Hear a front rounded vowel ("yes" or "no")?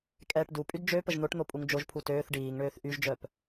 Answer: yes